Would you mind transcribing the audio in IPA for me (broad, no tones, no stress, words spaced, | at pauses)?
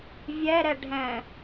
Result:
vʲɛ ɾɛɖʱɛ̃